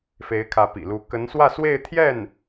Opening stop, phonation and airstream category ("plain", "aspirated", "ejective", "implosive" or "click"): aspirated